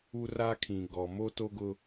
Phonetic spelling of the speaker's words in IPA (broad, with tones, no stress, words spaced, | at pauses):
u˦ra˦kʰĩ˨ ɡɔ˨ mo˦to˦ɡʊ˦